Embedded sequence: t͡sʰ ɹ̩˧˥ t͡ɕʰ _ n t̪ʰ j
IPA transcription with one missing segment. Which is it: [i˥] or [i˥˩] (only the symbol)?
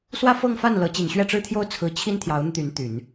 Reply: i˥